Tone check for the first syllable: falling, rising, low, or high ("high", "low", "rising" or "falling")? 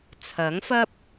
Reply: rising